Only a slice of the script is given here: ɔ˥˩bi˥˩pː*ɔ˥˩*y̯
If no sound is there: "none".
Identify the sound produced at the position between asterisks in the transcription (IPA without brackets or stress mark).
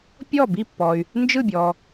ɔ˨